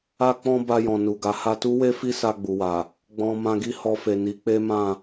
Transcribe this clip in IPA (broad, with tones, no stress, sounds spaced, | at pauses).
a˧ k͡p ɔ̃˧ b a˧ j ɔ̃˨ n u˨ ɡ a˨˦ h a˧ t u˦ w e˦ f i˦ s a˧ ɡ͡b u˨ w a˨ | ɡ͡b ɔ̃˨ m ã˧ ɡ i˦ h ɔ˧ f e˨ n i˨˦ k͡p e˦ m ã˦˨